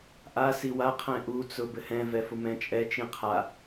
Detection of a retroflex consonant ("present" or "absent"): absent